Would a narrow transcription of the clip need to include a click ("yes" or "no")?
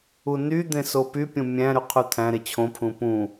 no